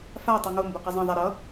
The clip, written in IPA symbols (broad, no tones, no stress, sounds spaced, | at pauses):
f a tˤ u ŋ o m b o q ɛ zˤ ẽ ðˤ a ɾ ʌ